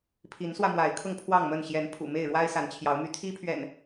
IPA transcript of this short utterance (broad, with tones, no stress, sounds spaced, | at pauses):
pʰ i˨˦ n s w ä˧ m w a˨˦ ɪ̯ kʰ ʊ˥˨ ŋ pʰ w ɑ˥˨ ŋ m ə˥˨ n ɕ j ɛ˨˦ n pʰ ṵ˨˩ m e˥˨ ɪ̯ ɻ w a˦ ɪ̯ s a˨˦ n t͡ɕʰ j ɑ˨˦ ʊ̯ m y˨˦ t̪ʰ i˦ pʰ ɥ ɛ̰˨˩ n